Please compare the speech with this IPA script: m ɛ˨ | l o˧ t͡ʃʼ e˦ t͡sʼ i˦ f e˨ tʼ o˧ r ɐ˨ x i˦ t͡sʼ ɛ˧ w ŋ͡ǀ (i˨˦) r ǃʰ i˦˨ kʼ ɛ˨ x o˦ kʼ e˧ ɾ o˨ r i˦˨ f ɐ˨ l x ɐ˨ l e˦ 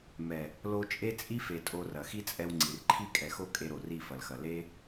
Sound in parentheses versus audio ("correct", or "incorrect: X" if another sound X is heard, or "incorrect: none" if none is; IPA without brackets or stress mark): correct